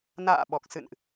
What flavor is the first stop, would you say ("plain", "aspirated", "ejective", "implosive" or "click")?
implosive